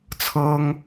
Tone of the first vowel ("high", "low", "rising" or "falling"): high